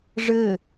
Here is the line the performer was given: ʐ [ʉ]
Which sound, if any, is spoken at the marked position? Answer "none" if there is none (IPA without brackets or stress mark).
ɘ